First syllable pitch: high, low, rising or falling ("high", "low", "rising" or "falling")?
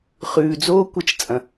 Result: low